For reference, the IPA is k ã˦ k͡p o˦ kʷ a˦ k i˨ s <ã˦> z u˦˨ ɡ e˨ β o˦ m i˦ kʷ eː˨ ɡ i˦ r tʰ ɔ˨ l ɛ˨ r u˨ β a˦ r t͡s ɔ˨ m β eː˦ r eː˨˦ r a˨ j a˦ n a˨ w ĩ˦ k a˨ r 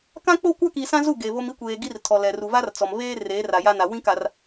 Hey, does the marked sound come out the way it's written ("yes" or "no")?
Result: yes